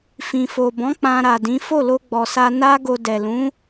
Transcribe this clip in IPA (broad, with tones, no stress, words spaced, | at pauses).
fĩ˨fo˨bɔ̃˨˦ k͡pã˧ɾa˨dĩ˨˦ fo˦˨lo˧ɡ͡bɔ˨sa˧ na˦ɡo˧ dɛ˨lũ˨˦